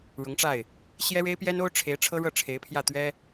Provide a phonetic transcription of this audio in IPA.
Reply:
ɻʊ˧˥ŋʈ͡ʂa˥˩ɪ̯ | ɕjɛ˥ɻe˥ɪ̯pjɛ˥no˥ʊ̯ ʈ͡ʂʰe˧˥ɪ̯ ʈ͡ʂʰɤ˥ɻɤ˥˩ ʈ͡ʂʰe˧˥ɪ̯pʰjä˥˩t̪ɥɛ˥

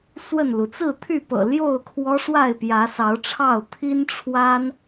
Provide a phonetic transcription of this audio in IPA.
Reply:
swə˥˨nlu˩ t͡sɹ̩˥˨t̪ʰy˥˨pɤ̰˨˩ ljo˥˨ʊ̯kʰwɔ˦ʂwa˥˨ɪ̯ pjä˨˦sɑ˨˦ʊ̯ʈ͡ʂʰɑ˥˨ʊ̯ t̪ʰi˦nʈ͡ʂʰwa˦n

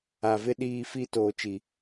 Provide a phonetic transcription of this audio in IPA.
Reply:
a˨vɪ˦ ɗiː˦fi˦ toː˨t͡ʃi˨

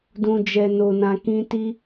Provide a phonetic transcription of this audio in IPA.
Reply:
dũ˧d͡ʒɛ˧no˧nã˧ kĩ˦ ti˦

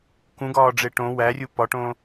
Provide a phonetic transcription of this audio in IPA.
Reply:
kũɡɒːɖ͡ʐe ʈõ wærʲu pɒʈõː

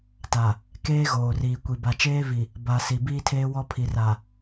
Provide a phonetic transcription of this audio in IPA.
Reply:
ta˨ | keː˦ ɣoː˨riː˨kʷi˨ ba˨t͡ʃeː˦vi˨ | ba˨si˨ biː˦tʰeː˦ wɔ˦pʰi˨ ra˨

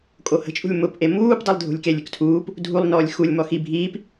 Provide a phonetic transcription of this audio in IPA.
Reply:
kʼohə̤t͡ʃʼṳlʲ mʊpʔe muːpdˤilˠdʱṳlʲkelʲ ʏktʰuːp | dʱulˠnɔːlʲ xulʲmɔ xi bʱiːp

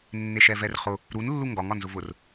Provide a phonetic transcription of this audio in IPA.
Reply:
nːeʃɛvɛrχʊ | ɾunlːu ŋɡɒŋɒ nzʊvʊr

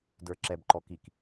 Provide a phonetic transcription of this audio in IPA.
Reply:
də˞ǁɛbǃɔ kik

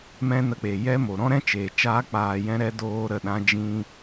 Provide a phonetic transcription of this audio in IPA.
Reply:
mɛ̃˦nə˧k͡pe˨ jɛ˦mo˨ ɾɔ̃˦ɾɛ̃˦ t͡ʃeː˨t͡ʃaː˦k͡paː˧ jɛ̃˦ɾɛ˦ doː˦ɾə˦˨ɗã˦ d͡ʒĩ˦

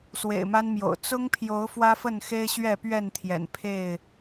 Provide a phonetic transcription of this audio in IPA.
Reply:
swḛ˨˩ɪ̯ma˦nmjo̰˨˩ʊ̯ t͡sʊ˦ŋpʰjo˨˦ʊ̯ fwä˦fə˥˨nxe˦ɪ̯ ɕɥɛ˥˨pɥɛ˥˨nt̪ʰjɛ̰˨˩n pʰe˥˨ɪ̯

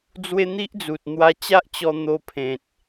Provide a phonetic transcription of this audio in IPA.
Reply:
d͡zwe˦n̪i˦ʔ d͡zu˨t̚n̪wa˧t͡ɕa˦ʔt͡ɕɔ˧ n̪o˧pʰẽ˨t̚

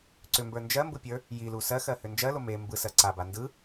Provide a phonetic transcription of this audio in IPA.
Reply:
ǀʏmbə˞ nd͡ʒɜmbɯpʲə˞ | jilu sɜxɜhʏ nd͡ʒɜlo me mbɯsɜ ǀaba ndɯ

